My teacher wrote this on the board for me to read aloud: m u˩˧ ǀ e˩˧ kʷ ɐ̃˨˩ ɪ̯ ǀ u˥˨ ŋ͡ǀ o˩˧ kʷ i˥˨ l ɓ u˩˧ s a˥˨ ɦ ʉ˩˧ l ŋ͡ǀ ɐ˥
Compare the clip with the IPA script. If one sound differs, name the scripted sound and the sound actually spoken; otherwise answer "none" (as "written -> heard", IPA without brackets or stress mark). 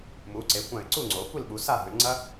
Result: none